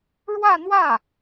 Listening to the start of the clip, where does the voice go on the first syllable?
falling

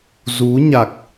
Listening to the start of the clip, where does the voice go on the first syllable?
rising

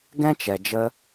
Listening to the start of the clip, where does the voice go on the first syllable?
high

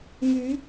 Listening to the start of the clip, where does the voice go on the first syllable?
rising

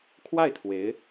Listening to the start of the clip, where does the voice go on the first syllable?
falling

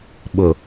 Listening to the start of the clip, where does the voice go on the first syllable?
low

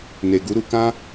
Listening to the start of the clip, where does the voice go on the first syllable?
low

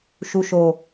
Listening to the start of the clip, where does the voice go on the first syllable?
low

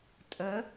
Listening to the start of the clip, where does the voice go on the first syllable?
rising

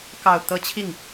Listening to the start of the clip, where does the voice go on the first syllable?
low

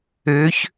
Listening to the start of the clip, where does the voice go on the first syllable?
rising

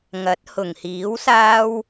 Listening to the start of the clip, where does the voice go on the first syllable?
rising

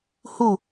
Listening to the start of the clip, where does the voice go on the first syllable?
falling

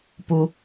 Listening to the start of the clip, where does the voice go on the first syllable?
low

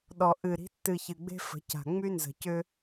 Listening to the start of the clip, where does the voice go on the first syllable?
low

